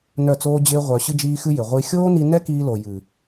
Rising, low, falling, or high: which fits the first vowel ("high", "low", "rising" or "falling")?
falling